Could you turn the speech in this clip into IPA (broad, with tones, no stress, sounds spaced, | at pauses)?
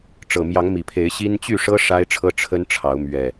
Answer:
ʈ͡ʂ ɤ˨˩ m j ɑ˨˦ ŋ m i˨˩ pʰ e˨˦ ɪ̯ ɕ i˦ n t͡ɕ y˥˨ ʂ ɤ˦ ʂ a˦ ɪ̯ ʈ͡ʂʰ ɤ˦ ʈ͡ʂʰ ə˦ n ʈ͡ʂʰ ɑ˨˦ ʊ̯ m ɥ ɛ˨˩